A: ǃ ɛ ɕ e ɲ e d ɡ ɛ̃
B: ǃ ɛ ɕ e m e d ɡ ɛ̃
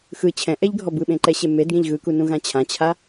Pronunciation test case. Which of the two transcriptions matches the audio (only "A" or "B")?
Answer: B